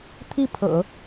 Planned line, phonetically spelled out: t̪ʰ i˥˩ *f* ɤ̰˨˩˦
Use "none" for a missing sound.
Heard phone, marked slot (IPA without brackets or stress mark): pʰ